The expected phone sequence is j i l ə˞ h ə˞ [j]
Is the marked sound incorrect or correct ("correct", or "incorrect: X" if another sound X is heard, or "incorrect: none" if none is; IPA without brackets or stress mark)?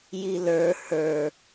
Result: incorrect: none